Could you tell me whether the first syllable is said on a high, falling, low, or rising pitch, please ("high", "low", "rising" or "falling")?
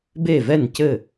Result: falling